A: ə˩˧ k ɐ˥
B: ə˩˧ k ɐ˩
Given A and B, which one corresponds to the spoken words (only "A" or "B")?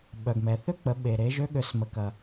B